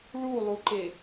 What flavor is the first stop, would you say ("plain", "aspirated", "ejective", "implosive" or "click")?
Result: click